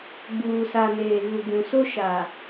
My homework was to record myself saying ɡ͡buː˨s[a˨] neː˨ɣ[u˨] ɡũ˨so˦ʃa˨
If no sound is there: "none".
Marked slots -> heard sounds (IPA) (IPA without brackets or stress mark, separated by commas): a˨, u˨